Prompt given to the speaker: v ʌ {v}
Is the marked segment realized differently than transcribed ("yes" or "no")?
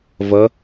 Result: yes